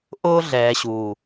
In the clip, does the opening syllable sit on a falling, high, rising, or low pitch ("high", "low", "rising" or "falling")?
high